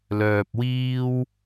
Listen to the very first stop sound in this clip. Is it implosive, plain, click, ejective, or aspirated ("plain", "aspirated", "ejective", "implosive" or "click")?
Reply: plain